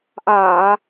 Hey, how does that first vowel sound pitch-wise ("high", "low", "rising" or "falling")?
low